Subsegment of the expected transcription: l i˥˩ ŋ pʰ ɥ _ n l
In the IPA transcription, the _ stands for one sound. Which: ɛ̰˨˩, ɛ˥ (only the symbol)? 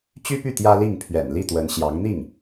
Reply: ɛ̰˨˩